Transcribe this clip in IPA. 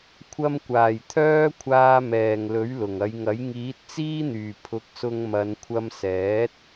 kʷʰɐ˧mkʷaː˨˩j t̪ʰœː˥kʷʰaː˧ mɛː˨˩ŋ lɵ˨˥ɥlʊ˨˩ŋɐ˨˧jŋɐ˨˥j ŋiː˨˥t̚t͡siː˥n̪yː˨˩ pʰʊ˨˥k̚sʊ˧ŋmɐ˨˧n kʷʰɐ˧msɛː˨˥t̚

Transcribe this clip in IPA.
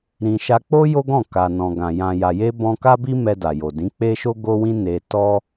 ɾĩ˨ʃa˧ k͡po˦ jo˦ɡɔ̃˦˨ ka˨ nɔ̃˨ɡã˨ jã˨ja˨je˧ bɔ̃˧ka˦bi˦ mɛ˧da˨jo˨dĩ˨˦ k͡pe˦ʃo˦ɡo˦wĩ˦ ne˧tɔ˦

